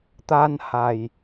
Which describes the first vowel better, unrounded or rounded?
unrounded